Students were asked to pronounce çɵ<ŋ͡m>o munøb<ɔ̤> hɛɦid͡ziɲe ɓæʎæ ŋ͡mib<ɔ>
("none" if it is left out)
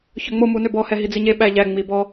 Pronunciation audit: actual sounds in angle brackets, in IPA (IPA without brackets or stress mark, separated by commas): ŋ͡m, ɔ, ɔ